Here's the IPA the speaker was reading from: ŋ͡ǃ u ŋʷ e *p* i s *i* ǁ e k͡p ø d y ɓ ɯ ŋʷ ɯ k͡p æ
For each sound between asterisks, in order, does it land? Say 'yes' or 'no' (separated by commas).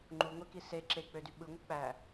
no, no